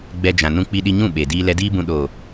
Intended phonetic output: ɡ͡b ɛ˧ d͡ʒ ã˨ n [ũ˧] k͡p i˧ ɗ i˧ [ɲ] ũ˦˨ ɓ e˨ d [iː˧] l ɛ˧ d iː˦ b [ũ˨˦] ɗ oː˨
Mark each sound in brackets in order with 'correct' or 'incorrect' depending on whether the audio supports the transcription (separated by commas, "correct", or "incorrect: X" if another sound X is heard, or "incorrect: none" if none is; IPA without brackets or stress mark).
correct, correct, correct, incorrect: ũ˧